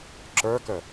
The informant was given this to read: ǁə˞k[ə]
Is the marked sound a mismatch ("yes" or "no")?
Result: no